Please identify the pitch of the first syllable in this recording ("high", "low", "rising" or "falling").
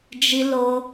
high